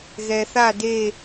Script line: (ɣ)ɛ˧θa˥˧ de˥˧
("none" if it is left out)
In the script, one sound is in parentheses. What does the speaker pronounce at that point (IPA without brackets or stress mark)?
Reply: ɣ